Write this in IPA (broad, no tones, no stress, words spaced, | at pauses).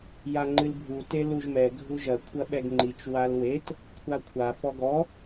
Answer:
jaŋ͡ǃɨlbʱu teluʒmɛ ɡʱuʒɐ kʷʰɐɓɛɡŋ͡ǃit͡ʃ walwet | kʷʰakʷʰa fɔɡɔ